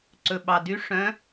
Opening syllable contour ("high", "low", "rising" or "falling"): low